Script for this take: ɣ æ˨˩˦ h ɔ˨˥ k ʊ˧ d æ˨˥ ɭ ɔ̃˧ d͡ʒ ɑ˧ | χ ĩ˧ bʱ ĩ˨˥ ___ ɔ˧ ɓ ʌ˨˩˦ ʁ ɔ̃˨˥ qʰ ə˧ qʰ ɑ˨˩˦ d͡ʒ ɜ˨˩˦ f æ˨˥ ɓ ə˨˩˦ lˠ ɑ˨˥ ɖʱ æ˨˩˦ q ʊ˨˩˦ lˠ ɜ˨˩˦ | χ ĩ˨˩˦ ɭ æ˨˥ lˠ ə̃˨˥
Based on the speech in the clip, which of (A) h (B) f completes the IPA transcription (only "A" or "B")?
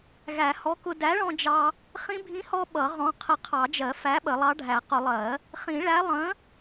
A